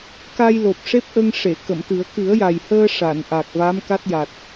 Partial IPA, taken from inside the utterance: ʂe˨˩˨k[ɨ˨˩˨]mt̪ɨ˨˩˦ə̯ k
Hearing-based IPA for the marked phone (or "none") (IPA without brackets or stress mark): ə˨˩˨